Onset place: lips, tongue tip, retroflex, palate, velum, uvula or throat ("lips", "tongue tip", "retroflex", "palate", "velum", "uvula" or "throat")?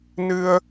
tongue tip